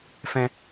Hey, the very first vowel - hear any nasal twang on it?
yes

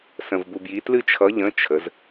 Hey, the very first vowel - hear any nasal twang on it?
yes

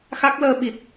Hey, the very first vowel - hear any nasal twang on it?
no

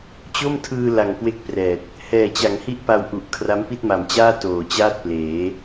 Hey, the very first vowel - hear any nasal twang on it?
no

